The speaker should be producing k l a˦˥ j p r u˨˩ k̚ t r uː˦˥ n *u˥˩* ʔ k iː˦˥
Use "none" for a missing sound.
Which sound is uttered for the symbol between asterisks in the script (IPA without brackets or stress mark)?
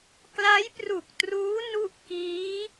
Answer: u˥˩